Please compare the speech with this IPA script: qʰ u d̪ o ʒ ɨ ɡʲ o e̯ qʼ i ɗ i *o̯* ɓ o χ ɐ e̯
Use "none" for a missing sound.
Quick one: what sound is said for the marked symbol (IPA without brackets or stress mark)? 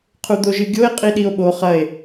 o̯